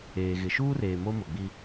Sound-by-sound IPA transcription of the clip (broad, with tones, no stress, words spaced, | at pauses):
eː˨ɣɪ˨ ʃuː˦reː˨ mo˦mʊ˨ɡ͡bi˦